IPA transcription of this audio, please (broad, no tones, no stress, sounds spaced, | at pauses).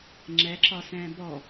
ŋ͡ǁ ɛ ǁ ɒ s ɛ̃ː b ɔ